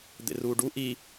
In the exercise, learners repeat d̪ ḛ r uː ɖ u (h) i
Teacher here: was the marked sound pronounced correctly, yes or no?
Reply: no